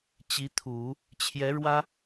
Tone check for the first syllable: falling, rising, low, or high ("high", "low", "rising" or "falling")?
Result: rising